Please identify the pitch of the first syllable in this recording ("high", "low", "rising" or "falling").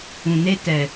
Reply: low